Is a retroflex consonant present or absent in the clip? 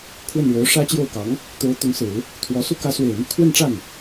present